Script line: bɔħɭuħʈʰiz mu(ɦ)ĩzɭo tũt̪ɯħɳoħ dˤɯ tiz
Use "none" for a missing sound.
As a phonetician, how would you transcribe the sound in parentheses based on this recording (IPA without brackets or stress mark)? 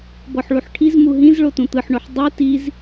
ɦ